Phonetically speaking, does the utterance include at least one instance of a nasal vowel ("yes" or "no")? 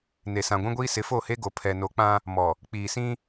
yes